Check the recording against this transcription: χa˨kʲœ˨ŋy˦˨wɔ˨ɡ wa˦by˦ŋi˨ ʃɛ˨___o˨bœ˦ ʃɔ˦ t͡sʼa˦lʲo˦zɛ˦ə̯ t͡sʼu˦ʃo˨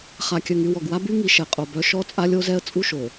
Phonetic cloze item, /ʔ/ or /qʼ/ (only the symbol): qʼ